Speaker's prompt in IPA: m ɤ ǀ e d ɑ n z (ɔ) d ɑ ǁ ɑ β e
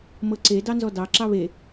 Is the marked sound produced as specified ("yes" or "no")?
yes